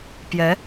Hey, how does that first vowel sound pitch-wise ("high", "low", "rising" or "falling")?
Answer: rising